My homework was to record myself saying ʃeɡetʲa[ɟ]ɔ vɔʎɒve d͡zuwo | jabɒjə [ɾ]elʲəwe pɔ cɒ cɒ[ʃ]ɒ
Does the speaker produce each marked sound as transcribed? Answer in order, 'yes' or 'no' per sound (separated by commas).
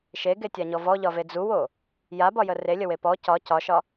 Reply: no, no, yes